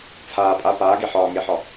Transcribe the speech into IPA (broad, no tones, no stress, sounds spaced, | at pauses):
t͡sʰ aː pʼ a p aː ɡ e ħ ɒː ŋ e ħ ɒ